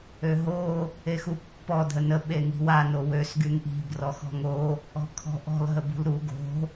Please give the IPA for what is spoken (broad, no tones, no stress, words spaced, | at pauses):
øɦo | exupːɔ dʱənə ɓeŋi̤wa nowøs ɡyŋʔi̤ brɔxɔ̤ŋo | ɔ̤kʰɔ̤ʔɔ̤l ɦəbṳlɾu ɡo̤